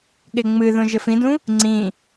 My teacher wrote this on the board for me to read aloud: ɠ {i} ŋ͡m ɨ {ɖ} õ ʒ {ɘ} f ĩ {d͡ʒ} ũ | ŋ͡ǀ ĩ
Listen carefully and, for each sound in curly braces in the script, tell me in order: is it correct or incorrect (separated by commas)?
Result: incorrect, incorrect, correct, incorrect